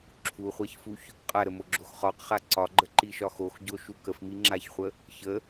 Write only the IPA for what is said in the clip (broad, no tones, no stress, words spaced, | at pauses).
ǁʰuχʷaçfuç | qʼaɾəmoɡ͡ǁox χɒqχa ǀɒɡ͡ǃəǃiʃɒ xoxɟoʃu kəfmiŋ͡ǁaçχʷə | çə